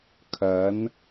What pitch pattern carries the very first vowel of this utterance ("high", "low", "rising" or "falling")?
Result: rising